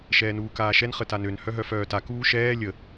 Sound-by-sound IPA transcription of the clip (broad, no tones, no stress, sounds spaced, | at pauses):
ʃ ɛː n uː k aː ʃ ɛ n χ ə t a n ø n h œ ɦ œ f œː t a k uː ʃ ɛː lʲ ə